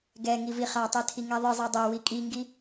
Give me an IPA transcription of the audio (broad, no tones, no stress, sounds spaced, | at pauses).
ɡ ɛ ŋ i v i χ a tˤ ɛ tʰ i ŋ ɛ ðˤ ɨ zˤ ɛ dˤ ɛ w i kʼ i ŋ ɡ i